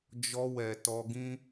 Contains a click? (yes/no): no